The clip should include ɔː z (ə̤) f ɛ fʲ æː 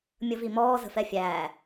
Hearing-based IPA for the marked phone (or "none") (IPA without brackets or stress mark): ə̤